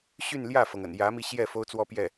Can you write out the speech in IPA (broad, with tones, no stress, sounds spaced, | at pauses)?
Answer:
ɕ y˥˧ n l j ä˥˩ f ɤ˩ ŋ ə̰˨˩ n j ä˧˥ m i˧ ɕ j ɛ˥˩ f o˥ ʊ̯ t͡s w ɔ˥ p j ɛ˥˩